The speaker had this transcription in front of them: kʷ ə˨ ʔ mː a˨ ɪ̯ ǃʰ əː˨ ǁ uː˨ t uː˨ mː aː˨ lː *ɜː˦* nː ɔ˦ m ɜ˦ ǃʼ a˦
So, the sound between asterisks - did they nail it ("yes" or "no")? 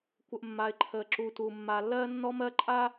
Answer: yes